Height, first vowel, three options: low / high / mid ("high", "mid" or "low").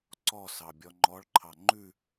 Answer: mid